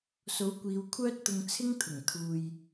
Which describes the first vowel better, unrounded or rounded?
rounded